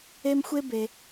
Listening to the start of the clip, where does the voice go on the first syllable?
high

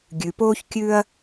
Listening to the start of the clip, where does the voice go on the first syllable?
low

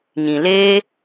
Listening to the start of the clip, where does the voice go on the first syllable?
low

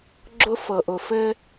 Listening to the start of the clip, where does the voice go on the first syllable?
high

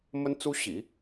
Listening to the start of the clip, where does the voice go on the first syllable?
high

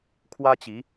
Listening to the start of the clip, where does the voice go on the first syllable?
high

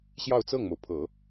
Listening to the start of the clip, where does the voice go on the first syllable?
falling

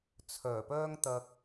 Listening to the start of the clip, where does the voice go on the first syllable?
low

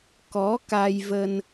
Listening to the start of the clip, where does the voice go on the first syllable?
rising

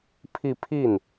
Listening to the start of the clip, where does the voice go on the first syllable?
falling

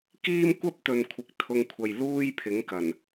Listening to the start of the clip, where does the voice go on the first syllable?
high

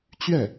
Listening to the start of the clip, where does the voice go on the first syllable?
falling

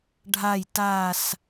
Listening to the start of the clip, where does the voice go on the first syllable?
low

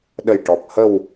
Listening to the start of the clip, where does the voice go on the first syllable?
low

